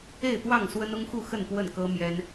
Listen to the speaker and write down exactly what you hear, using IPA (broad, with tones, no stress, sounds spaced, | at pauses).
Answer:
e˥˨ ɪ̯ t̪ w ɑ˥˨ ŋ s w ə˦ n ʊ˦ ŋ x u˥˨ x ə˥˨ n p w ə˥˨ n k ɤ˦ m j ɛ˦ n